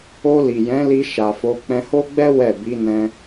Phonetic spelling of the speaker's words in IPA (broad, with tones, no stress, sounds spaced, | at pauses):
o˧ l i˨ j ɛ̃˨˦ l i˧ ʃ a˨ f o˨˦ k͡p ɛ̃˧ h o˦ ɡ͡b ɛ˦ w ɛ˦˨ b i˨˦ n ɛ̃˧